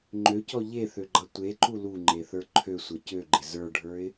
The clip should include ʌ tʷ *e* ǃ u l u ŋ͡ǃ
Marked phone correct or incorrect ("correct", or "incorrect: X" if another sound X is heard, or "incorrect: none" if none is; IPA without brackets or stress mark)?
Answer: correct